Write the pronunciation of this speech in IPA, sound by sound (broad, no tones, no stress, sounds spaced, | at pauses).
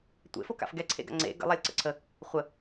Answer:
tʷ ḛ f o k a̰ f ɡ ɛ ǀʰ ḛ ɡ a̰ ŋ͡ǀ ḛ ɡ ə̰ lˠ a lʲ ǀ ə̰ ǀʰ ə | χʷ ə